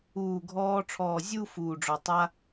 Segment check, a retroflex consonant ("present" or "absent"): present